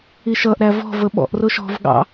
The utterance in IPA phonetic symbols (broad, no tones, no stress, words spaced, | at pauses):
iʃʌʔ ɾævɔ̤ vəɓɔ̰ʔ rʊʃɔ̤v ɠɑ̰